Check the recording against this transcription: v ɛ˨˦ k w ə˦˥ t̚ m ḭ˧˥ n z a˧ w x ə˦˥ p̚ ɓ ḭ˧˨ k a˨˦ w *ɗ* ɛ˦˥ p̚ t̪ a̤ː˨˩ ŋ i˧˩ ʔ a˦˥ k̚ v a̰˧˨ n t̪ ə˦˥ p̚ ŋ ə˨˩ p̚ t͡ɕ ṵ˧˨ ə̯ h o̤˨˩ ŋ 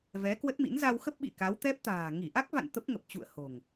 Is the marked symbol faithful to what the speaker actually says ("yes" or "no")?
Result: no